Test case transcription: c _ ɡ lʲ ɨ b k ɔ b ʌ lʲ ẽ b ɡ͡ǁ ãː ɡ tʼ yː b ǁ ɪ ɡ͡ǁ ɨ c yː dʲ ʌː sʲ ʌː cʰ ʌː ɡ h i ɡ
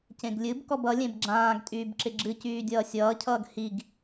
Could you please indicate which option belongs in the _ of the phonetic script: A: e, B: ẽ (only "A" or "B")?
B